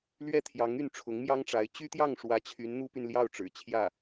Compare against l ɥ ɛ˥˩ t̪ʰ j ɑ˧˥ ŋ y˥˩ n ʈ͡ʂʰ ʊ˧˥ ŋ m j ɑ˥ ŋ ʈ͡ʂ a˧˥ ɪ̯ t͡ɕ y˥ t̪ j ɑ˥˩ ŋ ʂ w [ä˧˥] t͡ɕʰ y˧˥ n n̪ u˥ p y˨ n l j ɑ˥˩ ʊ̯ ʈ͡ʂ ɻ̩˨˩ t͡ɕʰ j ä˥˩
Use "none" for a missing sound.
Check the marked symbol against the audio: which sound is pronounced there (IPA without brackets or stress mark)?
ä˧˥